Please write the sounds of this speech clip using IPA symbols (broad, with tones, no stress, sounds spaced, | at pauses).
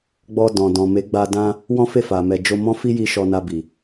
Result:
ɡ͡b ɔ˧ d ɔ̃˨ d ɔ̃˨ m e˨˦ ɡ͡b a˧ d ã˦ | w ɔ̃˦ f e˦˨ f a˨ m ɛ˨ d͡ʒ o˧ m ɔ̃˦ f i˦ j i˧ ʃ ɔ˧ n a˧ b i˨